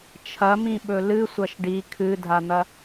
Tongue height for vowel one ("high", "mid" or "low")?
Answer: low